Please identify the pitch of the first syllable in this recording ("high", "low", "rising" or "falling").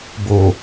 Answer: low